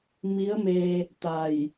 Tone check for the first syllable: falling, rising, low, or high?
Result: rising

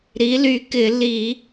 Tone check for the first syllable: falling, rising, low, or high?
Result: rising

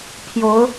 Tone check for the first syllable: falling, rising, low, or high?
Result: rising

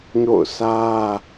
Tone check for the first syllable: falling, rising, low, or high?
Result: falling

